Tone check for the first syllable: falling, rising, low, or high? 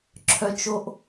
high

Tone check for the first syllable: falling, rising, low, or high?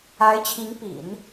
rising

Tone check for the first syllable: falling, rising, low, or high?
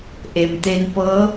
low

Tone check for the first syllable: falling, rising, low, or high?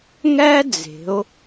high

